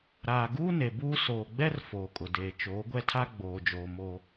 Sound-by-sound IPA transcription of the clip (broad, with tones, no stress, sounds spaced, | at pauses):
ɾ aː˨ ɡ uː˦ n e˨ b uː˦ s oː˨ ɡ͡b ɛ˦ r f oː˨ kʼ ʊ˨ d eː˨ t͡ʃ oː˨˦ ɡʷ ɛ˦ tʰ a˦ ɡ͡b oː˨ d͡ʒ oː˨ m oː˦